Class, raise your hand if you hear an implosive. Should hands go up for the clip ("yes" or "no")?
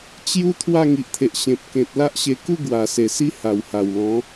no